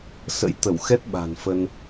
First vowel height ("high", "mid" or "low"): mid